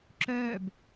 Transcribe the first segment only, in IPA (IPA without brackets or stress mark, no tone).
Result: ǁ